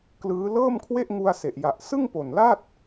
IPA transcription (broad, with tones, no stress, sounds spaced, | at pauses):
k l ɯː˦˥ l ɤː˥˩ m kʰ w e˥˩ ʔ ŋ u˧ a̯ s e˨˩ ʔ j a˨˩ ʔ s ɯ˥˩ ŋ p o˨˩ n l a˥˩ t̚